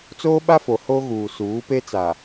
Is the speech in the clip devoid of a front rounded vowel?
yes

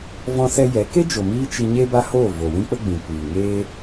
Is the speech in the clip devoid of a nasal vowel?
no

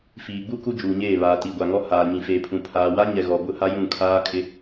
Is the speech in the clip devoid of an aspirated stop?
no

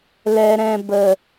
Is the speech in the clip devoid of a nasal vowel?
no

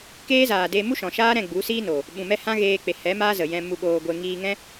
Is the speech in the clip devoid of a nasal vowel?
no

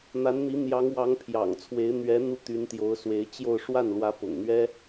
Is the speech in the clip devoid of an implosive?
yes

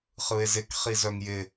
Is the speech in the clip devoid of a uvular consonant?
no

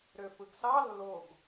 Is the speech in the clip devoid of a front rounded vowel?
no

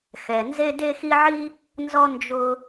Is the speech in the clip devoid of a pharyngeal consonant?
no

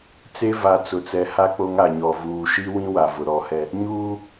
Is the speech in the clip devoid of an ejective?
yes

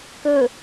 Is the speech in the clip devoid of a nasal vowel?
yes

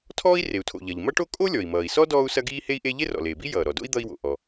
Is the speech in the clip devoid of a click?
yes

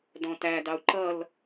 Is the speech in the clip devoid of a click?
no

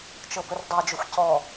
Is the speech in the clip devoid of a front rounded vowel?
yes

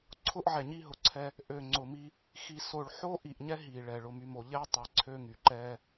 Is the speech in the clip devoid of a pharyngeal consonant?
no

